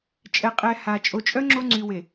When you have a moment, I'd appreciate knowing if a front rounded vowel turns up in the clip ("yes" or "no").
yes